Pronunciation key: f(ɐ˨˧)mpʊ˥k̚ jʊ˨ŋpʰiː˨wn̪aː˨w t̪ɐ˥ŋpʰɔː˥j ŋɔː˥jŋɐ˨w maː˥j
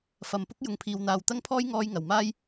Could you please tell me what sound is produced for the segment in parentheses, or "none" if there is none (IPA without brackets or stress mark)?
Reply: ɐ˨